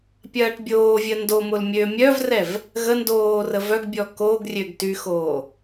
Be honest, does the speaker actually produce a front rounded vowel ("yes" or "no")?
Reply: yes